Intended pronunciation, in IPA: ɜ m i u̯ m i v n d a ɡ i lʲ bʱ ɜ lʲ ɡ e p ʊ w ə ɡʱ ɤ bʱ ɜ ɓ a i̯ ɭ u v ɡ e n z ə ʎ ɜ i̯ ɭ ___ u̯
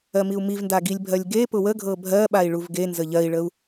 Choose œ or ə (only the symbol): ə